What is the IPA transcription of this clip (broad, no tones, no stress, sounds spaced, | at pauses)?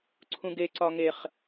ǀʰ ũ ɡ e ǀ ɒ ŋ e χ